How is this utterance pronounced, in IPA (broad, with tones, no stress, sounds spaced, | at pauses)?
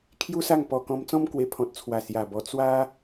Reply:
kʰ j u˦ s a˥˧ ŋ p ɔ˧ k ɔ̃˧ m t͡s ɔ̃˦ m k w e˧ pʰ ɔ̃˨ t̚ t͡sʰ w a˨˩ s j a˨˩ b ɔ˧ t͡s w a˦